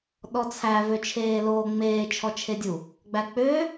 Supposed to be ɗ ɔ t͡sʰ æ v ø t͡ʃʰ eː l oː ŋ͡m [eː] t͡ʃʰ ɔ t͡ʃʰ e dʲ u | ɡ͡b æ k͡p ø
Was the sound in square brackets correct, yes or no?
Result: yes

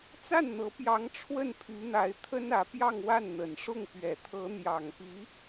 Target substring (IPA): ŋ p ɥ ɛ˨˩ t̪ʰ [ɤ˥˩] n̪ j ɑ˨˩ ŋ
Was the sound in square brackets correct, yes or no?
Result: no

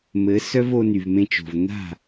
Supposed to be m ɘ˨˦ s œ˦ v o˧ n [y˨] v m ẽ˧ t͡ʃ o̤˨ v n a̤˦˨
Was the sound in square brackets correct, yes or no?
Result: yes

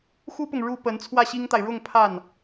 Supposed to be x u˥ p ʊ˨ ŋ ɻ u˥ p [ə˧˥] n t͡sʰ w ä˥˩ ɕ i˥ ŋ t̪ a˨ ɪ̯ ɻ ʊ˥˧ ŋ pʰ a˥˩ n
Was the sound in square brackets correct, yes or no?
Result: yes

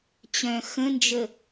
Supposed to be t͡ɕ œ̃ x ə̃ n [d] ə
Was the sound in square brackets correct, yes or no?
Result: no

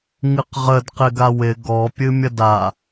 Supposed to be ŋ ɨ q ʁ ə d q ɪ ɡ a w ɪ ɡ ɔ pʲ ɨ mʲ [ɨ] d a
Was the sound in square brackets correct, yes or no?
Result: no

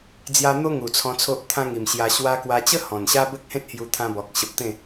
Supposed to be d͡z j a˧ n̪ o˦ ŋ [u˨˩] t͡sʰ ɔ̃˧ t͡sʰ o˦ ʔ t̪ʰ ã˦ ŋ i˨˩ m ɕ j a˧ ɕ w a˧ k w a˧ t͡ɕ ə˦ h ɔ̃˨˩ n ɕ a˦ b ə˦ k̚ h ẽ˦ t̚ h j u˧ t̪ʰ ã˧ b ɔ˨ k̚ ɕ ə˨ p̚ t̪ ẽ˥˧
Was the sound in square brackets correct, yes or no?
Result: yes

